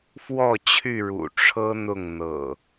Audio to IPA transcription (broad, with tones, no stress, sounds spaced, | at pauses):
f w ɔ˥˨ t͡ɕʰ y˥˨ ɻ ṵ˨˩ ʈ͡ʂʰ ɤ˦ n̪ ʊ˥˨ ŋ n̪ ɤ̰˨˩